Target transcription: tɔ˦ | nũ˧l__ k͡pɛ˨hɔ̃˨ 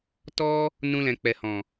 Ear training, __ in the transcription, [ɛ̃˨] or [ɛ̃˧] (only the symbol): ɛ̃˨